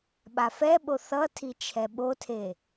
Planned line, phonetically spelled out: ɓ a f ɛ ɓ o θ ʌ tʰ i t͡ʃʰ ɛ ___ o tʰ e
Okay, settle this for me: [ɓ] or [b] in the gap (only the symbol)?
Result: ɓ